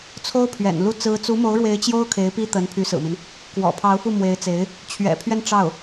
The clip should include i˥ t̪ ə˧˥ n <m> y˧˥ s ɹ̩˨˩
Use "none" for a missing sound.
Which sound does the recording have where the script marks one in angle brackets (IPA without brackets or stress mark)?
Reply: pʰ